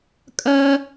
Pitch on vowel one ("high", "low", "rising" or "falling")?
high